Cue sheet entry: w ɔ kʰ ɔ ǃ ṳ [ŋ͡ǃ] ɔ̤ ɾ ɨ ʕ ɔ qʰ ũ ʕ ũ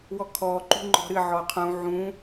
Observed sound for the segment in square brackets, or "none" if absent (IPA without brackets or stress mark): ŋ͡ǃ